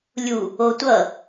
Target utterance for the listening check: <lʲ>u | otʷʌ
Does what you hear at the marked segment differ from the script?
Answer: no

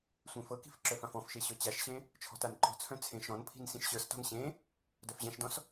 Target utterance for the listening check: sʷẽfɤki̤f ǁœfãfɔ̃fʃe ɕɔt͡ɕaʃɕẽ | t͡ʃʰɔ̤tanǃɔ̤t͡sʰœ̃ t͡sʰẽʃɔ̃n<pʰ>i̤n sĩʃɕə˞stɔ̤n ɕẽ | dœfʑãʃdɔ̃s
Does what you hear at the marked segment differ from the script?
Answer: no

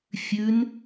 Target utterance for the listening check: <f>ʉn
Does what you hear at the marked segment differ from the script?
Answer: yes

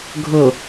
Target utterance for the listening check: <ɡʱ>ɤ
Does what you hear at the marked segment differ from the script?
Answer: no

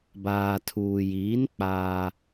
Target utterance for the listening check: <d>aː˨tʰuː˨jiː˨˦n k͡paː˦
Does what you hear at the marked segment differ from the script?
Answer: yes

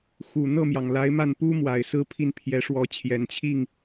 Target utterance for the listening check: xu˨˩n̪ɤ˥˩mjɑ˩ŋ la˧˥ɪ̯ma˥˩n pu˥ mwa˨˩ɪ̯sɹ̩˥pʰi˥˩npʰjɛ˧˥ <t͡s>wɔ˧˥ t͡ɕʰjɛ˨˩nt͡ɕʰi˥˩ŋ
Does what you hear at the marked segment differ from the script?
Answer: yes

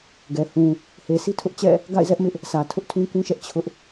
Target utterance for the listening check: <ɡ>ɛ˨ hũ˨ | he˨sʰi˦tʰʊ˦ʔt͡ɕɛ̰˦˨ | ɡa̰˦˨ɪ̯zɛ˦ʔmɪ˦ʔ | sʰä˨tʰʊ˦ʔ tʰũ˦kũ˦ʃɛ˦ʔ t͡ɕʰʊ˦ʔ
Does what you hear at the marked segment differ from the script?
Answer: no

